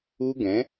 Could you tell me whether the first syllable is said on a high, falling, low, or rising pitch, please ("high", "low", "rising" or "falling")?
high